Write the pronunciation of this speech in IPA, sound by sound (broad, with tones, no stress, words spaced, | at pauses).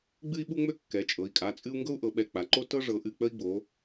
ɡ͡bɨ˦i̯ɓu˦ŋ͡mø˦ kːɛ˩˧t͡ʃʼɤ˩˧i̯kʼa˩˧˩t͡sʼɨ˦u̯ ŋɡɤ˦u̯ʔɤ˩˧ɓɛ˩˧˩ k͡pa˩˧ǃo˦ tɤ˦ ʐɤ˩˧ʔɨ˩˧˩k͡pə˦i̯ɡ͡bo˩˧